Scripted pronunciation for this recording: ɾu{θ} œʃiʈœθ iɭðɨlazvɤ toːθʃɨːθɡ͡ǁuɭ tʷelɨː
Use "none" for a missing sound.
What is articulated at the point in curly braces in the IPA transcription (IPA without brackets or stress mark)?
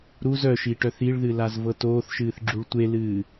z